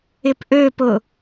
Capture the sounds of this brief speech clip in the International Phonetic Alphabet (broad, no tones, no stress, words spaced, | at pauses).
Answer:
ɪpʔøpʊ